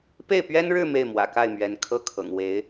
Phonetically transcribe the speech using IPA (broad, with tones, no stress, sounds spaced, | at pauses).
p e˥˩ ɪ̯ p ɥ ɛ˥ n ɻ ɻ̩˥˧ m e˥˩ ɪ̯ m w ä̰˨˩ k a˥˩ ɪ̯ m ɥ ɛ˧˥ n kʰ ɤ˥˩ kʰ ɤ̰˨˩ ŋ w e˧˥ ɪ̯